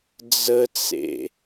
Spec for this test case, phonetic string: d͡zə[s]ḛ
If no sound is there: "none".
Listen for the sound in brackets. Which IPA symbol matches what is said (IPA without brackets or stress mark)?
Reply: t͡s